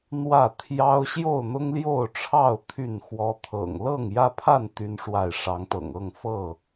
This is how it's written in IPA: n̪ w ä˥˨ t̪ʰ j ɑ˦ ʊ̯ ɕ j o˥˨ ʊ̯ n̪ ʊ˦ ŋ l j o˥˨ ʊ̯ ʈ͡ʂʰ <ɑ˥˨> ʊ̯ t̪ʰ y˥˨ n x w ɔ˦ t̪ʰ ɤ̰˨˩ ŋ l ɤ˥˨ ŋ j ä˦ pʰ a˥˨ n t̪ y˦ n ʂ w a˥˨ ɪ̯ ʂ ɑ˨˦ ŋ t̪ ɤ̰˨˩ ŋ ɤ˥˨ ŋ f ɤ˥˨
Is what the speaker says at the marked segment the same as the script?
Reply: yes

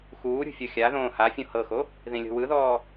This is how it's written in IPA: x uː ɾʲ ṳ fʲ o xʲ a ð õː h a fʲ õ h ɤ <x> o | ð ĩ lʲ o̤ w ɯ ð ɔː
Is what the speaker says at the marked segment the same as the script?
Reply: yes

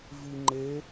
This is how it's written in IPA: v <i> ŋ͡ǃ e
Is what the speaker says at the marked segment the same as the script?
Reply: yes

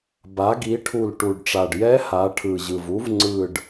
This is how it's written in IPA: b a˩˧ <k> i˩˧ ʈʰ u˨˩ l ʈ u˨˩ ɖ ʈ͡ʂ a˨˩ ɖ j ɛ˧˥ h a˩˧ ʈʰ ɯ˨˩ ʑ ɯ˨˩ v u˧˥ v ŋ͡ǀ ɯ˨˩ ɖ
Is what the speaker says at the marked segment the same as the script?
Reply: no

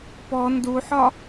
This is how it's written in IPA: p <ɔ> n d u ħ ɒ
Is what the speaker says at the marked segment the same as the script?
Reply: yes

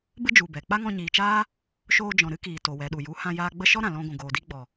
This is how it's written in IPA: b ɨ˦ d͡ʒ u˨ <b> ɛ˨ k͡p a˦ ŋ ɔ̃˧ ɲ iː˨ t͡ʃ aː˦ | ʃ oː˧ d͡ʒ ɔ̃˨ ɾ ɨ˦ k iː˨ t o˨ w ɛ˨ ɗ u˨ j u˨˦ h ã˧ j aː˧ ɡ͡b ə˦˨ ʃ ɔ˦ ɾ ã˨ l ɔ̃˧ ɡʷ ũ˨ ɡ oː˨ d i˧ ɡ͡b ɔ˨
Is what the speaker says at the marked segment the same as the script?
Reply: yes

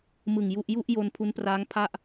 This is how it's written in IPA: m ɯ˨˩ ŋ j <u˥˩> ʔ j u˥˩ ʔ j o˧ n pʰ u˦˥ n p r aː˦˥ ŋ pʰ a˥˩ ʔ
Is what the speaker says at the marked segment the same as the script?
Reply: yes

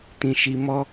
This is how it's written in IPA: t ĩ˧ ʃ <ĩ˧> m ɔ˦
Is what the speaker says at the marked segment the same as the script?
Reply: no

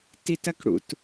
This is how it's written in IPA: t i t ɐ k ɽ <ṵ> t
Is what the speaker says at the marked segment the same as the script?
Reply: yes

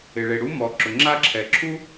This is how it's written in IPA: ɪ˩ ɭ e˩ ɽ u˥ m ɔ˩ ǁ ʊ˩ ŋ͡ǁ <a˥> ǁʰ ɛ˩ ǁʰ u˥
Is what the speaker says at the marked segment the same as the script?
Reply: yes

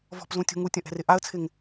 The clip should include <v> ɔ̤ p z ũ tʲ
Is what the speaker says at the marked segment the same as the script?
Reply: yes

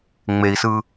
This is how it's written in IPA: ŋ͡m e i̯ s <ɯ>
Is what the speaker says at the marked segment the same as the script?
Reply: yes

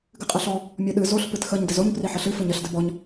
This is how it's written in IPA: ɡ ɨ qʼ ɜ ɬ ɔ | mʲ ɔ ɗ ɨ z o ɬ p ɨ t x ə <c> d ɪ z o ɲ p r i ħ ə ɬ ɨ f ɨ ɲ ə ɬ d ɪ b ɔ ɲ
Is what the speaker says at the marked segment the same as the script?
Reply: no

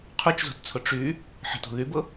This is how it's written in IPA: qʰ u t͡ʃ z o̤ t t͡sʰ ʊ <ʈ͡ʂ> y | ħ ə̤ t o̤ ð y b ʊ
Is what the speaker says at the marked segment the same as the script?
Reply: yes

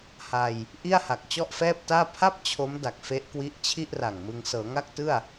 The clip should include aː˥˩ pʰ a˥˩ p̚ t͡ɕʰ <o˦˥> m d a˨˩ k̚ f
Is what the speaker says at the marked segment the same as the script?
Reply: yes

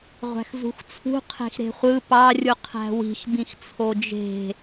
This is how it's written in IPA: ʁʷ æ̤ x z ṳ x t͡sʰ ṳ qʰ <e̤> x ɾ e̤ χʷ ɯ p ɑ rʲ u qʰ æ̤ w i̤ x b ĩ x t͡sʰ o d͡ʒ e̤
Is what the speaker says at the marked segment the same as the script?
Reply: yes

